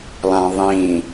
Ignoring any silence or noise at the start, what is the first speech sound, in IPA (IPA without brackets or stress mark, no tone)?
lˠ